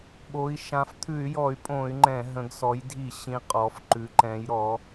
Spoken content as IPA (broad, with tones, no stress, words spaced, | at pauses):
ɓo˩˧i̯ ʃã˩˧ft̪ʰʉ˧˩˧y̯jɔ˧˩˧y̯pʼõ˧˩˧y̯ ŋ͡ǃɛ̃˧˩˧ ɦə̃˩˧ɡsɔ˩˧jdʱi˧˩˧ ɕĩ˩˧ qʼɔ˩˧f ǃʉ˩˧ǃɛ̃˩˧jɾɔ˩˧